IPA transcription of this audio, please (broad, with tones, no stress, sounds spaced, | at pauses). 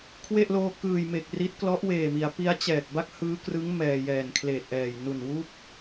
kʰ w e˥˩ ʔ l oː˧ k ɯː˨˩ j m e˨˩ k̚ r i˦˥ t̚ k l ɔ˦˥ ʔ w eː˨˩ m i˩˦ a̯ p i˦˥ a̯ t͡ɕ ɛː˨˩ k̚ b a˥˩ k̚ h ɯː˦˥ k r ɯ˦˥ ŋ m ɛː˧ j ɛː˨˩ n kʰ l eː˨˩ t̚ ʔ ɛː˨˩ j n u˨˩ n w u˥˩ k̚